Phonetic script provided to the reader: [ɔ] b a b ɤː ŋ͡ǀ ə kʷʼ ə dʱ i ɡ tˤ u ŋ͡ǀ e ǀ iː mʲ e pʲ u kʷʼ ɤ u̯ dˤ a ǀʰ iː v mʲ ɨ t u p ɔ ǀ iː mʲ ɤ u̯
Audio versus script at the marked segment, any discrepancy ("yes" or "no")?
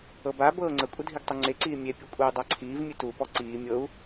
yes